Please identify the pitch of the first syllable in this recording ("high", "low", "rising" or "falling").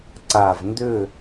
low